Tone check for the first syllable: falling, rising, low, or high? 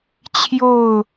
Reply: falling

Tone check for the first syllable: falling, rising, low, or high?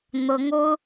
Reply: rising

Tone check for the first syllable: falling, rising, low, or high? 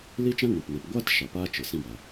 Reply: high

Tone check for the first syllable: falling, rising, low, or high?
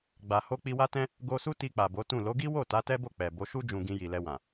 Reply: low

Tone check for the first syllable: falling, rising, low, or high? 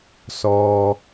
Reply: low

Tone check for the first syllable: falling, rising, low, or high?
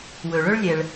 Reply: low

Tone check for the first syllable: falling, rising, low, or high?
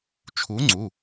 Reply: rising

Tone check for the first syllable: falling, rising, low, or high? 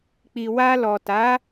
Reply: low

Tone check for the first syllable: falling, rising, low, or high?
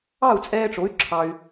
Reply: falling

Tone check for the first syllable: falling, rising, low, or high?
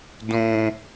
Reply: high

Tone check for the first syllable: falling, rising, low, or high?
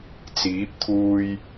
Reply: rising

